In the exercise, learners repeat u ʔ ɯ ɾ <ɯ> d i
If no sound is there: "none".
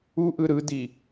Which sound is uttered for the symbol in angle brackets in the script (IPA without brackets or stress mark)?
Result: ɯ